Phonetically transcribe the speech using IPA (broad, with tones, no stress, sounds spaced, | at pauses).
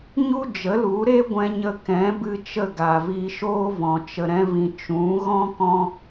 ɲ u˦ d͡ʒ ə˨˦ l u˨˦ ɾ e˦ ɡʷ ɛ̃˧ ɲ ə˧ k ɛ̃˨˦ b ɨ˧ t͡ʃ ə˦˨ ɡ a˨ v iː˧ ʃ oː˦ v ɔ̃˨ t͡ʃ ə˨ ɾ ɛ̃˧ v ĩ˨ t͡ʃ ũ˨˦ ɣ ɔ̃˦ k ɔ̃˦